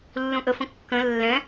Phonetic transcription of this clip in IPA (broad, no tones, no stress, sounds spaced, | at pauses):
lː ũ ʔ ə f ə̃ kː ə̃ lː ɛ̃